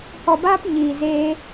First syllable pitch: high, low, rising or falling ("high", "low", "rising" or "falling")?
low